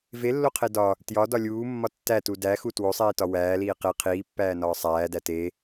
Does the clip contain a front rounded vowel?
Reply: no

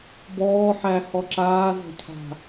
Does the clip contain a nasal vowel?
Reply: no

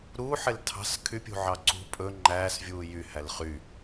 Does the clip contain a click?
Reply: yes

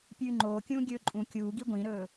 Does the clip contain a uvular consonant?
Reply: no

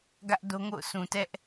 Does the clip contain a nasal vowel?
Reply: yes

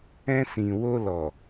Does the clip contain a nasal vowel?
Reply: yes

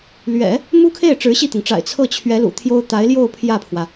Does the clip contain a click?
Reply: no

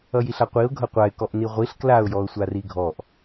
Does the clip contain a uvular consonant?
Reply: yes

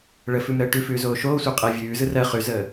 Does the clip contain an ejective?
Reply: yes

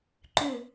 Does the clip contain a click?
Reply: yes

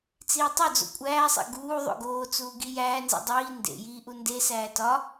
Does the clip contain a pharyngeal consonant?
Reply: no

